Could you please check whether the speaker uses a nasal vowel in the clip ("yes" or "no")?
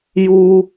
no